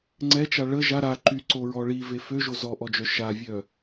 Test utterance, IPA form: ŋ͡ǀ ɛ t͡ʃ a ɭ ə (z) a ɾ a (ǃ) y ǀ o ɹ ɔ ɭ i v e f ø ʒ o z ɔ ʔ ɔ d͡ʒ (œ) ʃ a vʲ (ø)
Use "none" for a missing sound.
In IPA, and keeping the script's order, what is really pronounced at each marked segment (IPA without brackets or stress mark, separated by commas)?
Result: ʒ, ǃ, œ, œ